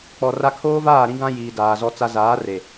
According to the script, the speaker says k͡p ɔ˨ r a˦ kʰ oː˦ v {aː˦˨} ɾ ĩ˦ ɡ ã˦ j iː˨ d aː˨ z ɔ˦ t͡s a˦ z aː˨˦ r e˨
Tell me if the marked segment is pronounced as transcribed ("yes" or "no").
yes